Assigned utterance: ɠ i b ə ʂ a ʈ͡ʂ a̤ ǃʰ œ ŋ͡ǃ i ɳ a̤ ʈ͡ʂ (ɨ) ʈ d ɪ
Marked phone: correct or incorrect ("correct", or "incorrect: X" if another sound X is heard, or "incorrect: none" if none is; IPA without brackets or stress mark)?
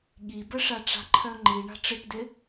correct